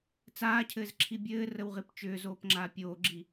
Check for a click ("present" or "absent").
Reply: present